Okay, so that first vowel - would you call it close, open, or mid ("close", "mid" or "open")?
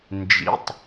close